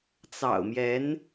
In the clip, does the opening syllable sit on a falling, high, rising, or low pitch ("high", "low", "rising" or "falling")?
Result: low